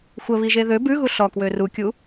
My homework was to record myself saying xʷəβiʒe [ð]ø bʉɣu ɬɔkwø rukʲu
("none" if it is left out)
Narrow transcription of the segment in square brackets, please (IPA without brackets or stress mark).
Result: ð